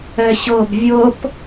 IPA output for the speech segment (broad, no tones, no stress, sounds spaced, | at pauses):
ɛ ɕ ɤ b vʲ ɤ p